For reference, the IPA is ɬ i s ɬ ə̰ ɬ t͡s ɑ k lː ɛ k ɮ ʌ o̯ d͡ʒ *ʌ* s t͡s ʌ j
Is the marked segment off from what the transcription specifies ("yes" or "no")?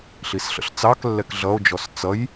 yes